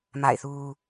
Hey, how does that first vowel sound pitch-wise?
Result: falling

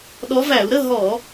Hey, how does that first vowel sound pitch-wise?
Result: rising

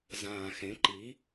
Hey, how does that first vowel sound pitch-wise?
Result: low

